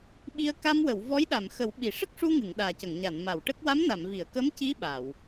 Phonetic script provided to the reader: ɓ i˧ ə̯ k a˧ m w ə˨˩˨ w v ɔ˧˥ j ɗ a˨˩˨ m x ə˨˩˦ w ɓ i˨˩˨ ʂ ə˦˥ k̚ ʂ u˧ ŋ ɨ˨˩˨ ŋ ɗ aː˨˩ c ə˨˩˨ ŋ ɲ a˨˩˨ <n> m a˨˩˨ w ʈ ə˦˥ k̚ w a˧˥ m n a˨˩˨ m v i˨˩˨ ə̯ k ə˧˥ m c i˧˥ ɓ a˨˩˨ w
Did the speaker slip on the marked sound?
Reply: no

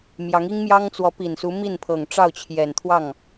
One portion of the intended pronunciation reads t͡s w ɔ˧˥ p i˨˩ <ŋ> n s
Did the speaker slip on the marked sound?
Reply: yes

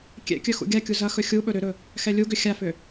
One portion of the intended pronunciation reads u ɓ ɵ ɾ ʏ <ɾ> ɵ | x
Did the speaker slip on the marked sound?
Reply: no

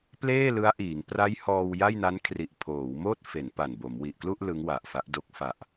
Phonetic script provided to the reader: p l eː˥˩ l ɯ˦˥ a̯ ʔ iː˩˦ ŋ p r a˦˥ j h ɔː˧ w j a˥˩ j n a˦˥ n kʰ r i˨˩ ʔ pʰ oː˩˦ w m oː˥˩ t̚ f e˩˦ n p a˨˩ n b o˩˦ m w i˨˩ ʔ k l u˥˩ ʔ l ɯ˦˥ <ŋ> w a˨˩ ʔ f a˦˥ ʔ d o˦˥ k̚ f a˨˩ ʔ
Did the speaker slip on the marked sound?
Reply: no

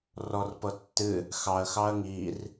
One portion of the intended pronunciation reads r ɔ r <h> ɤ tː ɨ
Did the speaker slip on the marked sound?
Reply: yes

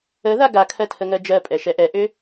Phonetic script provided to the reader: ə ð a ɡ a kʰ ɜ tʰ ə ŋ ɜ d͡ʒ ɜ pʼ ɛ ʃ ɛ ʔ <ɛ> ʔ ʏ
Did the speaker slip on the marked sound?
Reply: no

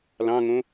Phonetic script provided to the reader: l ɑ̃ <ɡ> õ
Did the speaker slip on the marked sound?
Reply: yes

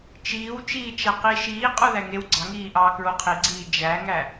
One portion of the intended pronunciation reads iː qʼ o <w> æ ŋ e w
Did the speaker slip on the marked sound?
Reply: yes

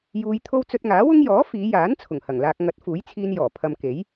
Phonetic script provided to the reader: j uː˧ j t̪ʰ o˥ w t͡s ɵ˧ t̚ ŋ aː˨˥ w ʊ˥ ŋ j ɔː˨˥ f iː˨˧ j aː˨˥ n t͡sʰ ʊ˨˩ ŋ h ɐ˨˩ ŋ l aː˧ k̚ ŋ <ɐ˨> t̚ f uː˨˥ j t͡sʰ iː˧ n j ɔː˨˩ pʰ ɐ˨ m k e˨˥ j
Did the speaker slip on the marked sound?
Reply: yes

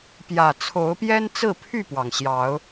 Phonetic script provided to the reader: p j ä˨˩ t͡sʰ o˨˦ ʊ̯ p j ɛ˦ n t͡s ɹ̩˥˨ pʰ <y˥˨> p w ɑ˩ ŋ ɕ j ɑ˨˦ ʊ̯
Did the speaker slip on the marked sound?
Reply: no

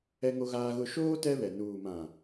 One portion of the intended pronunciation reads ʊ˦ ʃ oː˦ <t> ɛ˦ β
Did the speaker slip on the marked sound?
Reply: no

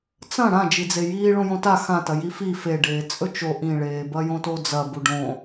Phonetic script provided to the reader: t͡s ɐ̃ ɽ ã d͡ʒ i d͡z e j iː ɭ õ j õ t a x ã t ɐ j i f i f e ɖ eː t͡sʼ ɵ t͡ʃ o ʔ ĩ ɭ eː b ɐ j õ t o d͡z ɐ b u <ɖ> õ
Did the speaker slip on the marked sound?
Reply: no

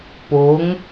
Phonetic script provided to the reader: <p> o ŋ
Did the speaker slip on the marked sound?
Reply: no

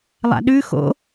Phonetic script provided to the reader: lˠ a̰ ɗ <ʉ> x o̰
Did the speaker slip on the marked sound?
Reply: no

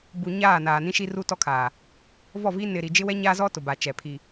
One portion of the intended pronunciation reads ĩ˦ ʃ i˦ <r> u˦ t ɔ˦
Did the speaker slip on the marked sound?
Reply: no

